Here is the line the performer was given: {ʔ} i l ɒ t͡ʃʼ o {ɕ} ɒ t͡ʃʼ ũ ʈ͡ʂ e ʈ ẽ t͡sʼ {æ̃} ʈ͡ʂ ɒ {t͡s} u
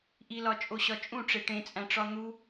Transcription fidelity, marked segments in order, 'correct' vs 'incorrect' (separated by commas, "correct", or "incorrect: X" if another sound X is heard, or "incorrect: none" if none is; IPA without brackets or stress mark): correct, correct, correct, incorrect: n̪